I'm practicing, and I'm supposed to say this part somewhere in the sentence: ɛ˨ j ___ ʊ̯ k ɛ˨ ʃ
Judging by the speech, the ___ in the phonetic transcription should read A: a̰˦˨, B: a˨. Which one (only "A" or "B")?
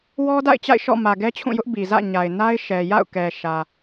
A